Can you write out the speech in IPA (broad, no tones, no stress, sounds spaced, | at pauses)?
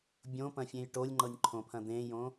bʲ õ p ɐ̃ fʲ ẽ j ʈ o lʲ ŋ͡ǃ ɤ nʲ ǃʰ õ pʰ ɐ̃ d̪ ẽ j õ